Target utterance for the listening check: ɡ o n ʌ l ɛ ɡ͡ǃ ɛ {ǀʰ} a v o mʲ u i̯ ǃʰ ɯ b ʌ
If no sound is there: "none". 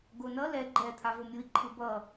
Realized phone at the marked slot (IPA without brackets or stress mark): t̪ʰ